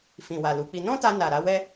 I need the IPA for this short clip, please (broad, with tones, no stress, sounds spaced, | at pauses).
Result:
f ĩ˨ w a˨ l u˨˦ k͡p i˧ n ɔ̃˦ t a˧ n a˨ ɾ a˨˦ w ɛ˦